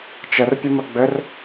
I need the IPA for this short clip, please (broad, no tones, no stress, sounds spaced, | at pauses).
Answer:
t͡ʃ ə r pʲ ə m ə ɡ͡b ɘ r